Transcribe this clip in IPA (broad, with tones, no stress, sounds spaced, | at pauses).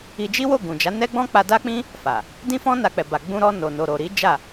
i˧ d͡ʒ i˦ w o˦˨ ɡ ũ˨ d͡ʒ a˨˦ n ɛ˦ ɡ͡b ɔ̃˦ k͡p a˧ d a˦ k͡p ĩ˦ | f a˨ | d ĩ˦ f ɔ̃˦ n a˧ k͡p ɛ˨ b a˨ ɡ͡b ũ˧ ɾ ɔ˧ n o˨ n o˨ ɾ o˨ ɾ i˨˦ d͡ʒ a˦˨